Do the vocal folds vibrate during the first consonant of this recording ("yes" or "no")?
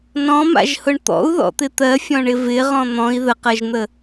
yes